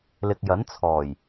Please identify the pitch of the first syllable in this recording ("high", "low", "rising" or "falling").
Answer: low